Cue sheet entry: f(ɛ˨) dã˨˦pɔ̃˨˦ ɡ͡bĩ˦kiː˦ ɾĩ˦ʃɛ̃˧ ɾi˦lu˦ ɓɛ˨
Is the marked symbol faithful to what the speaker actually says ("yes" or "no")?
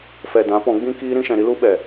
yes